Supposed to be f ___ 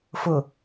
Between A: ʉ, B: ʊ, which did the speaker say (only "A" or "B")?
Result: B